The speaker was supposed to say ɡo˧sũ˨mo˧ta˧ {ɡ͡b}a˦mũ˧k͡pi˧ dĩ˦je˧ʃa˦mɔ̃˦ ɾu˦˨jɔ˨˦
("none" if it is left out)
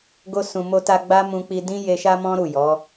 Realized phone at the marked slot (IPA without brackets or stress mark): ɡ͡b